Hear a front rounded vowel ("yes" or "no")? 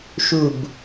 no